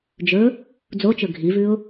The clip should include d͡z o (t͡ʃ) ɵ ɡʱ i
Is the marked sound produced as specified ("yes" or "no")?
yes